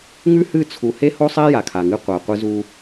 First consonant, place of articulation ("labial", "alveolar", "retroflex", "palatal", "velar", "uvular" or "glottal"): velar